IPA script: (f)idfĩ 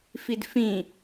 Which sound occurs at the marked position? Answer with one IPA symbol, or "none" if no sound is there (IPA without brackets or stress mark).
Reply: f